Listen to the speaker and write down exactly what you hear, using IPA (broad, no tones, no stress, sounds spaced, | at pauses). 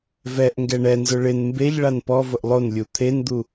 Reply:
v ɛ ʔ ŋ ɡ ɛ ɳ ɛ n z ʊ ɭ ɪ n m b e ʎ ɭ a n p ɔ v ʊ ʔ lˠ o n lʲ u t̪ʰ e n d̪ u